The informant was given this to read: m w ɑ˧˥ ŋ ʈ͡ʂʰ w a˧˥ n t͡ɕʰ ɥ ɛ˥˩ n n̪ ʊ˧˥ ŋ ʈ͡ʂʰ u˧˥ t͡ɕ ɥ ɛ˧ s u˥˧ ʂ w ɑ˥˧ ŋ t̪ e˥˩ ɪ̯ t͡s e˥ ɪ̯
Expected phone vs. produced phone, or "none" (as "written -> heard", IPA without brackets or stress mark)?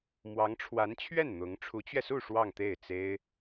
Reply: none